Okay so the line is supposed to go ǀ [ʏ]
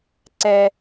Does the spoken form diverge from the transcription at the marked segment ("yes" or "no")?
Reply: yes